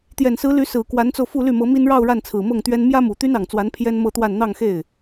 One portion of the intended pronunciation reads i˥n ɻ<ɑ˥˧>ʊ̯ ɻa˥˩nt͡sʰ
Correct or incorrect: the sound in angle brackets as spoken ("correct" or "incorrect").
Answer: correct